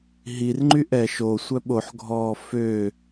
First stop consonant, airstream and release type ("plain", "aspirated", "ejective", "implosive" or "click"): click